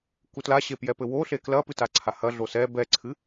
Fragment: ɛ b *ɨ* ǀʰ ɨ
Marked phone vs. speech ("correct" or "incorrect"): incorrect